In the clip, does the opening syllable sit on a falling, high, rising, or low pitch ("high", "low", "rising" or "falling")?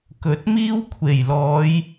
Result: rising